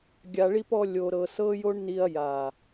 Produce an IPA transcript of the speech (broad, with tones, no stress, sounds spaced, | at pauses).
ɡʲ a˧ ɭ i˦ p ɔ˦ lʲ o˧ ɾ ɤ˧ s ɤ˦ j o˦ ɳ n i˧ ɐ̯ j a˨